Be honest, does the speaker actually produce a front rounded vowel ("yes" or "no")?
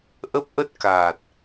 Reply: no